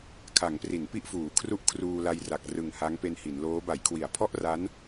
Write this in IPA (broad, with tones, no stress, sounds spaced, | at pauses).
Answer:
kʰ a˩˦ ŋ p r i˩˦ n p i˥˩ ʔ f uː˩˦ kʰ r u˥˩ ʔ kʰ r uː˧ l a˧ j r a˨˩ k̚ r ɯ˨˩ ŋ h a˦˥ ŋ p e˧ n h i˩˦ n l oː˦˥ b a˩˦ j kʰ w i˩˦ a̯ pʰ ɔ˥˩ ʔ r a˦˥ n